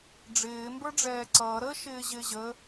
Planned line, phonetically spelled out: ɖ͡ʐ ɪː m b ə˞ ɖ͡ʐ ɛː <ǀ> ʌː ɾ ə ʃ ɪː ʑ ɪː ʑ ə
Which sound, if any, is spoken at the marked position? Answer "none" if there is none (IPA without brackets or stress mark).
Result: ǀ